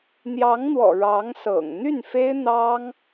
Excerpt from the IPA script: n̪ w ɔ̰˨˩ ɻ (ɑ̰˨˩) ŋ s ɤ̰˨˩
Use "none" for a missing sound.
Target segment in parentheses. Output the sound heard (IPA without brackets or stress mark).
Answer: ɑ˧˥